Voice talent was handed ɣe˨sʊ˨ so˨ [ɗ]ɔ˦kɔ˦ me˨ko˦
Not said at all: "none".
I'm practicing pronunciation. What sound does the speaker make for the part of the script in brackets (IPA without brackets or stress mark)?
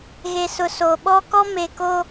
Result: ɓ